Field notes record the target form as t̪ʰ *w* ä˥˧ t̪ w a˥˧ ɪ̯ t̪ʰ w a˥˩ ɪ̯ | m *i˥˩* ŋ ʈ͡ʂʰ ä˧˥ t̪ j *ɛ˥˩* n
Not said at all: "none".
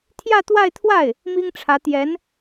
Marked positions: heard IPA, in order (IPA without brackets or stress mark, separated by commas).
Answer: j, i˥, ɛ˧˥